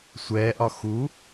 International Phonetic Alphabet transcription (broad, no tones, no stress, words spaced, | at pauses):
sʷɛːʔɒ xu